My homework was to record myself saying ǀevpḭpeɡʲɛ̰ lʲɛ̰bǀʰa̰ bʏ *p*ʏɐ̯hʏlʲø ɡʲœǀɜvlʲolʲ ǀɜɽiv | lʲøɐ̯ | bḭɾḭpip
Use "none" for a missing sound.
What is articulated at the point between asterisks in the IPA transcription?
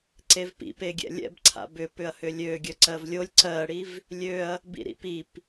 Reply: p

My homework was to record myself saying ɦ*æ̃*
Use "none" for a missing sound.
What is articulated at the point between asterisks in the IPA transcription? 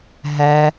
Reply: æ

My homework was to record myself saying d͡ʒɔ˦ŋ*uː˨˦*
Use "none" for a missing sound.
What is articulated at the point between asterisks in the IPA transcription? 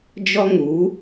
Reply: uː˨˦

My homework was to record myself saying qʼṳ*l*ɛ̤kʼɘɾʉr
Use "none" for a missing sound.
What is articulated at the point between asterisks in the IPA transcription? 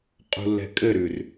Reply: lː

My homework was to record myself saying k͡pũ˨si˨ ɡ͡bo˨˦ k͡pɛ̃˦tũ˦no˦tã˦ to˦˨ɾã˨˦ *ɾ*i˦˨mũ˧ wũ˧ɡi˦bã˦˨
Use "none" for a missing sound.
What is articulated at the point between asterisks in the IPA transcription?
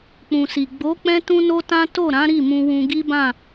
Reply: ɾ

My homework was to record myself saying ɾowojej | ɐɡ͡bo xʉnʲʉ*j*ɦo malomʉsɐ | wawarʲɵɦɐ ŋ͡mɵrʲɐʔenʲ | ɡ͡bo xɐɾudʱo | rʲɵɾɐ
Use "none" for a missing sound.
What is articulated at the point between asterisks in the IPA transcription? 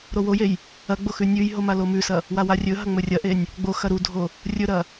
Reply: j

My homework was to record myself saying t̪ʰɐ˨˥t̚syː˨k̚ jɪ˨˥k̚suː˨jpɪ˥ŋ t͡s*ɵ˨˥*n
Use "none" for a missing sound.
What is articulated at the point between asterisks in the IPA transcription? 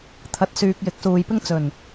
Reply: ɵ˨˩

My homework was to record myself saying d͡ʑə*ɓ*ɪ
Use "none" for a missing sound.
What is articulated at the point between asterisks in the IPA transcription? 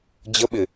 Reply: ɓ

